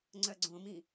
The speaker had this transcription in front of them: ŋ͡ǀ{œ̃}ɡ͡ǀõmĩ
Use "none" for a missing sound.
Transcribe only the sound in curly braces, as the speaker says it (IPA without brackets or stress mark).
œ